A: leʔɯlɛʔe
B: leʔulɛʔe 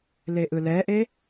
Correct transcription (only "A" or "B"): A